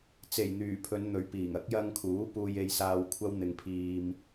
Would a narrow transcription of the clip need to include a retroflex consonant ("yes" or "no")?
no